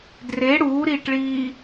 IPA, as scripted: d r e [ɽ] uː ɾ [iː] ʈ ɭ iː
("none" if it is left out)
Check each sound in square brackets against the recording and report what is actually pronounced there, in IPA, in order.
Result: ɽ, iː

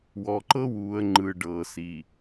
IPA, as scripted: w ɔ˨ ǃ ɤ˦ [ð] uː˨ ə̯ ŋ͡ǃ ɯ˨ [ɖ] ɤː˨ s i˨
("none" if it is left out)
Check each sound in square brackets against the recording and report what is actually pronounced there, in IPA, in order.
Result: w, ɖ

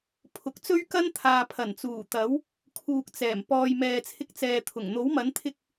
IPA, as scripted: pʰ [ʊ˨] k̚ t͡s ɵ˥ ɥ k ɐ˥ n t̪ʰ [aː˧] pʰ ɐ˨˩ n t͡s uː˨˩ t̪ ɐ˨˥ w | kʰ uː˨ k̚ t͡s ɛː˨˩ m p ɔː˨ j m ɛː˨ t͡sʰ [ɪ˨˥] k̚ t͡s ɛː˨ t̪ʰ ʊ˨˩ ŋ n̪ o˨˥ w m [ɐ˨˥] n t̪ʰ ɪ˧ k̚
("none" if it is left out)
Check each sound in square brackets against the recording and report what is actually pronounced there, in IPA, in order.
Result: ʊ˨˥, aː˨, ɪ˧, ɐ˨˥

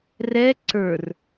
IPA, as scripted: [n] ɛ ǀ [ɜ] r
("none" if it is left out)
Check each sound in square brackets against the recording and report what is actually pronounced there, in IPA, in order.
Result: r, ə˞

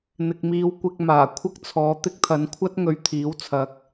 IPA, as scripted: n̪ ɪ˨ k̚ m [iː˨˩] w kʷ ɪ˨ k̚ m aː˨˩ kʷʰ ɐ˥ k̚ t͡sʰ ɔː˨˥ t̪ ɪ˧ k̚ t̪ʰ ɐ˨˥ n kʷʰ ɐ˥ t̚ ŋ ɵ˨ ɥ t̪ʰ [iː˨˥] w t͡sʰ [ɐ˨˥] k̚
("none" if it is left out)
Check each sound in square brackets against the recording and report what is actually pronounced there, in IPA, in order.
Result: iː˨˧, iː˨˥, ɐ˨˥

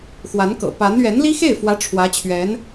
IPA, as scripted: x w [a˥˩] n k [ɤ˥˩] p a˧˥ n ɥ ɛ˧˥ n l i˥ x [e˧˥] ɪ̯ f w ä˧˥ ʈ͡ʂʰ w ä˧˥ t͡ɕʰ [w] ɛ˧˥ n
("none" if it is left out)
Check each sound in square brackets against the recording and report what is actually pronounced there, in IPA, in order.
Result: a˧˥, ɤ̰˨˩, e˥˩, ɥ

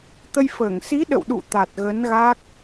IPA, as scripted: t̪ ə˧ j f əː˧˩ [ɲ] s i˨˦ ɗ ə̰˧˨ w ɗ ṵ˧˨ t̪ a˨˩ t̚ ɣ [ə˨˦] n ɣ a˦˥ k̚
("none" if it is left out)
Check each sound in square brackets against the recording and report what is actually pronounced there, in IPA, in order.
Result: ŋ, ə˨˦

